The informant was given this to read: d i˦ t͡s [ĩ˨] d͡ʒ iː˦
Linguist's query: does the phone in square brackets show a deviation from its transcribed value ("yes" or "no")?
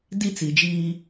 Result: yes